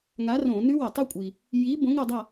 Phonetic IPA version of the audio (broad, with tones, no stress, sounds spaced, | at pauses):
ŋ a˨˥ r õ˧˩˧ n ʉ˦˥ w ɐ˧˩˧ tˤ ɵ˦˥ kʷʼ i˩ | j i˨˥ b õ˨˥ ŋ ɵ˦˨ dˤ a˦˨